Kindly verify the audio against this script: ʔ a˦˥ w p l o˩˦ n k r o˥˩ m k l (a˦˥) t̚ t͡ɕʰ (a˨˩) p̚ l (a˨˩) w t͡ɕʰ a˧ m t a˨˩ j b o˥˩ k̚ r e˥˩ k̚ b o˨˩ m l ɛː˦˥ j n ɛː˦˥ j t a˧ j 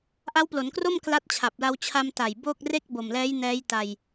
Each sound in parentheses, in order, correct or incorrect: correct, correct, incorrect: a˧

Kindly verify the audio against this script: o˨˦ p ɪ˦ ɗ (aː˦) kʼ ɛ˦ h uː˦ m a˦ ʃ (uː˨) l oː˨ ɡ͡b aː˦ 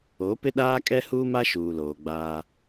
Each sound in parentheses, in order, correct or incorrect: correct, correct

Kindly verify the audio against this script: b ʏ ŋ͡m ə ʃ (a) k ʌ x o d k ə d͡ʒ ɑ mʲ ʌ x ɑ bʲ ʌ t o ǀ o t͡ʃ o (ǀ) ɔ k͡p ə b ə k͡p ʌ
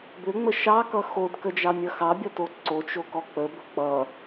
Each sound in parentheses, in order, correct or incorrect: incorrect: ɑ, incorrect: k

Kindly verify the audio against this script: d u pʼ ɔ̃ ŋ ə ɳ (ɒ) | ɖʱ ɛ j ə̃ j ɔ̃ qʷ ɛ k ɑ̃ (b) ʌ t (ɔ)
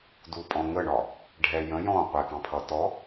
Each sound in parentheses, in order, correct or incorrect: correct, incorrect: pʰ, correct

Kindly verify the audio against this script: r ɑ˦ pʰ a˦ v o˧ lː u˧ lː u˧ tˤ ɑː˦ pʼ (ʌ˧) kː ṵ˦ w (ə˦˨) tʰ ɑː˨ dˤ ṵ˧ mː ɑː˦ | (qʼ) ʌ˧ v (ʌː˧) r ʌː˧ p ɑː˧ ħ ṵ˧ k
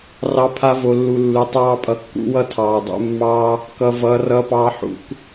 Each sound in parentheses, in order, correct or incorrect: correct, incorrect: ʌ˦˨, incorrect: k, correct

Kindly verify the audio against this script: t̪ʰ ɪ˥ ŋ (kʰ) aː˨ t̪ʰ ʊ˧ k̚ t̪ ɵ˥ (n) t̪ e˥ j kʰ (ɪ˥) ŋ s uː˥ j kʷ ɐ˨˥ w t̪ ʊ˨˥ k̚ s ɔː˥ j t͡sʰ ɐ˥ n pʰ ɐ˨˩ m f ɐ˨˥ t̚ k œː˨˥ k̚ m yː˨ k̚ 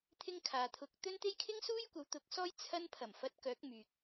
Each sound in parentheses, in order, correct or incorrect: correct, correct, correct

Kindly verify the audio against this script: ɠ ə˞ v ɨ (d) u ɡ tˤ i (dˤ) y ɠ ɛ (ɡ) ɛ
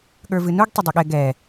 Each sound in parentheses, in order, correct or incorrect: incorrect: n, correct, correct

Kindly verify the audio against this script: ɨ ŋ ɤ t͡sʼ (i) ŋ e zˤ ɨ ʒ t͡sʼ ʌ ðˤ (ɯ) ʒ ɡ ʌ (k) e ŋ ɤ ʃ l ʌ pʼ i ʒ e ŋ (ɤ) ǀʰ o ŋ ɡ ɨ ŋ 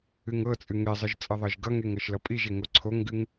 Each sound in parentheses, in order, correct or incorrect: incorrect: ɨ, incorrect: ɤ, incorrect: ŋ, incorrect: o

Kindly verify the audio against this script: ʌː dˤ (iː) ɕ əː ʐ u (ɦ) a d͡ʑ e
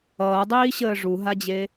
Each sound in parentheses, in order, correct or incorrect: correct, correct

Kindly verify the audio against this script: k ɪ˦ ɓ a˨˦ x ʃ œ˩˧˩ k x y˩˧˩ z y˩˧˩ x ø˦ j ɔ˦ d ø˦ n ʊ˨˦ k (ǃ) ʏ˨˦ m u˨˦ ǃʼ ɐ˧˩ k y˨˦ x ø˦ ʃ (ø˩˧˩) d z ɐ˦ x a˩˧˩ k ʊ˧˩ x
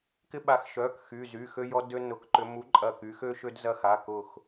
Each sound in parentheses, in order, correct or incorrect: correct, incorrect: ø˦

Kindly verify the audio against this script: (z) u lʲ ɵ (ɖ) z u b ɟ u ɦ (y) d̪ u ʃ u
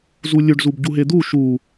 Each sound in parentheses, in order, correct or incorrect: correct, correct, incorrect: e

